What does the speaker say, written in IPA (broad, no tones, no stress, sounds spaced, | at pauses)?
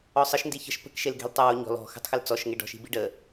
ɔ sˤ ə ʃ n d i ç ə̤ ʃ p ə̤ k ʃ e l ɡ e̤ l tˤ ɯ w o ɲ ɔ̤ l ɔ̤ x ə̤ tˤ x ə l t͡s ɔ ʃ ŋ e ɖ ɔ̤ ʃ i̤ b i ɖ ə